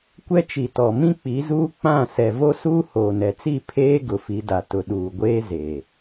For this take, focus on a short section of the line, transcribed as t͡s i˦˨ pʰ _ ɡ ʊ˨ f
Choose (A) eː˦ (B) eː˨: A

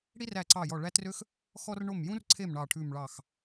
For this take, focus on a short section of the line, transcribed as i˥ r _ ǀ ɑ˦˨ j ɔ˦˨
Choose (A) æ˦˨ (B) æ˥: A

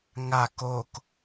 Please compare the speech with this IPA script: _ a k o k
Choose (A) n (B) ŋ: B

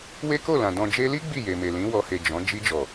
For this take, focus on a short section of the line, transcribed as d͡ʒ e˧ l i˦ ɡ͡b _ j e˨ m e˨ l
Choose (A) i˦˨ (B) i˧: A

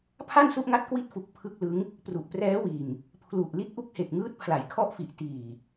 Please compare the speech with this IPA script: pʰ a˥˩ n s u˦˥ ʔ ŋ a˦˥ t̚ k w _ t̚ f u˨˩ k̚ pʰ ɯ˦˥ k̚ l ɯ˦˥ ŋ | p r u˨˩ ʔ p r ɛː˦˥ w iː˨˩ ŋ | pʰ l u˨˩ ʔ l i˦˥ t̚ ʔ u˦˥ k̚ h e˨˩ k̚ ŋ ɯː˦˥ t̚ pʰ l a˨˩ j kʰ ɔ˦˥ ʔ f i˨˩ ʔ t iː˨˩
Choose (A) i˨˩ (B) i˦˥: B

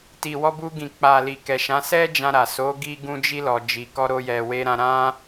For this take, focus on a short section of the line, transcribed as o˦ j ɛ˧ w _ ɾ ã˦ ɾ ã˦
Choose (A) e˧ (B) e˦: B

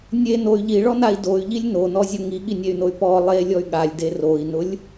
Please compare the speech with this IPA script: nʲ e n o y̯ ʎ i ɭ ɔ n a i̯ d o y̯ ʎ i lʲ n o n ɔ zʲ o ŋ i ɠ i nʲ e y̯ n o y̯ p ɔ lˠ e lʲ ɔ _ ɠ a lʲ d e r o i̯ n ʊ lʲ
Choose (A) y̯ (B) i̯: A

